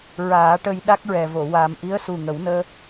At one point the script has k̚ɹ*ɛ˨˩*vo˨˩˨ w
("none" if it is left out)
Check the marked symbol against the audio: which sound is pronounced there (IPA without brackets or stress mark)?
ɛ˨˩